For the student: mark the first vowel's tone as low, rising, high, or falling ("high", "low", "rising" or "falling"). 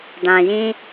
low